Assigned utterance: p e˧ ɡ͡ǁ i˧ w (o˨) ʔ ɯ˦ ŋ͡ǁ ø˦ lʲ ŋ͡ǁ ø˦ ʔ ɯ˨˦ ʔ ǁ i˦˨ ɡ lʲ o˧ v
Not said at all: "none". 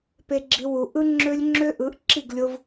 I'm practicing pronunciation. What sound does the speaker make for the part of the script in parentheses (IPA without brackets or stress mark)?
u˨